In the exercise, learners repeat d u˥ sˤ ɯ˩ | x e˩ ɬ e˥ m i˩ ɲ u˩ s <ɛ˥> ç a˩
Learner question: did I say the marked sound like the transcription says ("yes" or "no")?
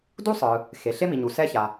yes